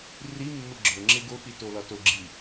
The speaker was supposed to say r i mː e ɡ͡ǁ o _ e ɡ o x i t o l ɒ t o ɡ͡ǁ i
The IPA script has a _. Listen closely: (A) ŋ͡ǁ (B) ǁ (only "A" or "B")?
A